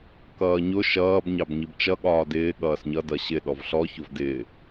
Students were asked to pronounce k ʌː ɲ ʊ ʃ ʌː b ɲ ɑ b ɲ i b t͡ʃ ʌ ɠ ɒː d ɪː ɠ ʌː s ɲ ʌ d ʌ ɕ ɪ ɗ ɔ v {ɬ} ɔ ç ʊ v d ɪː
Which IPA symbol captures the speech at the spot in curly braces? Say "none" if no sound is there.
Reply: ɬ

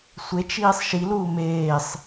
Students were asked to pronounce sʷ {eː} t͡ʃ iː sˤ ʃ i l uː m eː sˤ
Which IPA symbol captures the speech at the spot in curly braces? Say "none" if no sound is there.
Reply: e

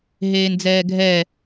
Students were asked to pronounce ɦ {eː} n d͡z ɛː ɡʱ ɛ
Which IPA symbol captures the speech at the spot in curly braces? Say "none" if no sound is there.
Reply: eː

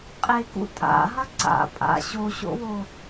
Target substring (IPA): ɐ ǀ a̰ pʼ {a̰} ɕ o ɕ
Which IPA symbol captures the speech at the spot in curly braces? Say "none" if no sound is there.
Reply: a̰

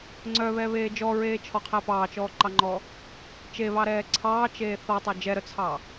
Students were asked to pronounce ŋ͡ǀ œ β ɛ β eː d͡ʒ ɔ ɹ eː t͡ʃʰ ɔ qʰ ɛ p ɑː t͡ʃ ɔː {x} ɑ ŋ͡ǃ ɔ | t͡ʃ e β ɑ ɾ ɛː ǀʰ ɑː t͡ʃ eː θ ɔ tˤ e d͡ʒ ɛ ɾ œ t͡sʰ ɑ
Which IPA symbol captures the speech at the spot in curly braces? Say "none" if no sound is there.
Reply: ǃ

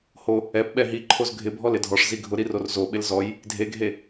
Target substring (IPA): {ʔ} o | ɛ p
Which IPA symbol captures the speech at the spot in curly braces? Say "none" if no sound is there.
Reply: h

